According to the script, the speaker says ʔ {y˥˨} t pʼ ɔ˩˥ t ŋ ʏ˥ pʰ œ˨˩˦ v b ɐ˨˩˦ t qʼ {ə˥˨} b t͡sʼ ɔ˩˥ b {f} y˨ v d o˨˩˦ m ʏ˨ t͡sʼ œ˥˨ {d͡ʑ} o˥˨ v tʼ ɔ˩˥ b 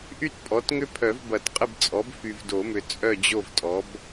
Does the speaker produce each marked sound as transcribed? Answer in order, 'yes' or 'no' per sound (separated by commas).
yes, yes, yes, yes